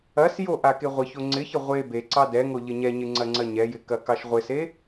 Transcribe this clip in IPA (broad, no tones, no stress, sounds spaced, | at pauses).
ɐ s j o ʔ a k e ʁʷ ɪ ç o ŋ͡ǀ ɪ ç ɪ ʁʷ e b e ǀ ɑ d ɛ ŋ o ʎ ɪ ɲ ɛ ɲ ɪ ŋ͡ǀ ɐ ŋ͡ǀ ɐ ɲ ɛ j ɪ k ɐ k ɑ ʃ ʁʷ ɪ s e